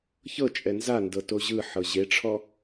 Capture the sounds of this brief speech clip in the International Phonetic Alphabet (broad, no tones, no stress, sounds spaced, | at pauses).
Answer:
ç ɤ t͡ʃʼ ɛ n z a n d ɤ t o ʑ ɯ ħ ɤ ʑ e ʈ͡ʂʰ ɔ